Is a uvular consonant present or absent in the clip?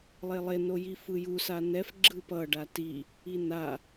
absent